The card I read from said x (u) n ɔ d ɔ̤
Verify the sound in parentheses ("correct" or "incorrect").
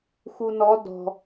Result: correct